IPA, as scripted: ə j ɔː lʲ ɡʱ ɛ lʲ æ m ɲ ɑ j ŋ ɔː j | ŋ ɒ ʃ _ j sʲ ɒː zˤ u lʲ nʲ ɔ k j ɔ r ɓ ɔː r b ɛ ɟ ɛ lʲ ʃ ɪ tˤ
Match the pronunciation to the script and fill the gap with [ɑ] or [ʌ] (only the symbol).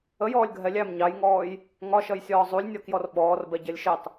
ʌ